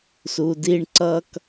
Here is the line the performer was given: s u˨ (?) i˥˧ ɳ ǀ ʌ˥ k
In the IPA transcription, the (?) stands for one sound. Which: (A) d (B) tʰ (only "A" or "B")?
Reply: A